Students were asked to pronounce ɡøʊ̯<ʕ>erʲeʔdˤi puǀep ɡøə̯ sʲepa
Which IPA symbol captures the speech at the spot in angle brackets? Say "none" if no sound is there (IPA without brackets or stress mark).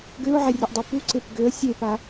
ʕ